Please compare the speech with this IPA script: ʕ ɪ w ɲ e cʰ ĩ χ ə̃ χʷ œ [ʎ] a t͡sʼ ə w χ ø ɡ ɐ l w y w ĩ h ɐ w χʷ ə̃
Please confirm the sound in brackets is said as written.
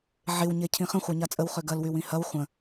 no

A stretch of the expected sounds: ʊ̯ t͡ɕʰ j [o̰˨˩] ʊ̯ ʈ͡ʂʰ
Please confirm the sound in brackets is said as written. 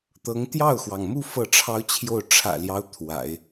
no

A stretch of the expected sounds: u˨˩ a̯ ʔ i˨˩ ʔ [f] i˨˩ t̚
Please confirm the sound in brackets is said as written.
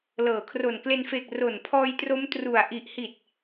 no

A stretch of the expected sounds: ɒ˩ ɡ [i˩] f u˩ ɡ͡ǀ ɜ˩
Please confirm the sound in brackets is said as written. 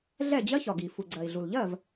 yes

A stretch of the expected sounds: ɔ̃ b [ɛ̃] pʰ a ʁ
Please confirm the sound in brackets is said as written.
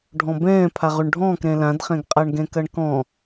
no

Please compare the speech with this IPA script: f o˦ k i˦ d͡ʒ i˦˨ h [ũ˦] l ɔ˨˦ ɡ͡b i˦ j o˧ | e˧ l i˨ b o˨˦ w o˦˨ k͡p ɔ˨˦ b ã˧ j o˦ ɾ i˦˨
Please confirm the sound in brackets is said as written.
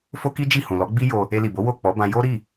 no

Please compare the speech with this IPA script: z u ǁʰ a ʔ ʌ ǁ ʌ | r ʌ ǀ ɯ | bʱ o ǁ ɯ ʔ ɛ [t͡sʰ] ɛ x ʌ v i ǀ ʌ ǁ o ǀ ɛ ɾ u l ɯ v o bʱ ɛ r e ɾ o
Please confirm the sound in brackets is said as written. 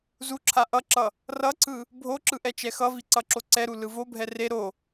no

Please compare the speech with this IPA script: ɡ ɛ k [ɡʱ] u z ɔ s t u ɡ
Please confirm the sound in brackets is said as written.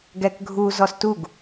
yes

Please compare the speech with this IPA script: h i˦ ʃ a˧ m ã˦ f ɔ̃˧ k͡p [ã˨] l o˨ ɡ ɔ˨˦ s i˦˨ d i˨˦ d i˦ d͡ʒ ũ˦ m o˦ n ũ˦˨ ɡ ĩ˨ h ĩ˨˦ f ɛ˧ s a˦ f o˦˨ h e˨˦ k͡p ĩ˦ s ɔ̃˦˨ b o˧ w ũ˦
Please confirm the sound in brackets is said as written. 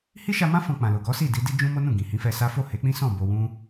yes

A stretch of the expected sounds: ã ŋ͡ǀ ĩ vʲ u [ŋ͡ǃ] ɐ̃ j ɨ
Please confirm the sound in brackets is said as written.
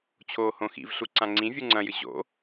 no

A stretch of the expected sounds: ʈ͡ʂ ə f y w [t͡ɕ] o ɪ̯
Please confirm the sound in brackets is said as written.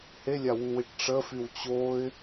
yes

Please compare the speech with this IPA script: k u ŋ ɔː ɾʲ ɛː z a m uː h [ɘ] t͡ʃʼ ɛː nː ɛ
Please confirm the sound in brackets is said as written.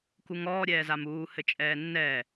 yes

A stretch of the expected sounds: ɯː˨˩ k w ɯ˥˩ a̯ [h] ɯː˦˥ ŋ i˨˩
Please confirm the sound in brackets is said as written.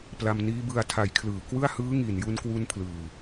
yes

